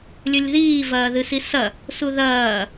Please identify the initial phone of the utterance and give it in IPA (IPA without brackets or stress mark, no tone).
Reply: lʲ